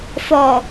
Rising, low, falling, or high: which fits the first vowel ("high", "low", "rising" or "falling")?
low